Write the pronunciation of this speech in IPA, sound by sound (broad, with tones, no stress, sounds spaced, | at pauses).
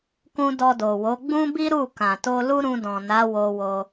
k ũ˧ d ɔ˧ d o˨ w o˨˦ ɡ͡b ũ˦ b i˦ ɾ u˦˨ k ã˨ t o˧ l u˦ ɾ ũ˧ d ɔ̃˨ n a˨˦ w o˧ w o˧